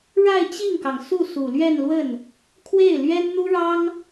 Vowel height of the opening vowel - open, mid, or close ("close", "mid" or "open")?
open